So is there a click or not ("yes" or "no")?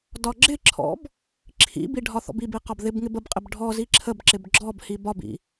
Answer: yes